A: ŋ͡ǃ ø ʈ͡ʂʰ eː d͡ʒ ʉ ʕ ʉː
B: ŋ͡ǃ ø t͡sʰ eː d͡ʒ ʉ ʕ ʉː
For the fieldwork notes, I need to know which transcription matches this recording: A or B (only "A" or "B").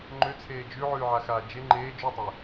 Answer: B